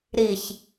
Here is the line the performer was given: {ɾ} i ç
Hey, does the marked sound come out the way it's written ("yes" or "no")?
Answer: yes